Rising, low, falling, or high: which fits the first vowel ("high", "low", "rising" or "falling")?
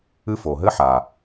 high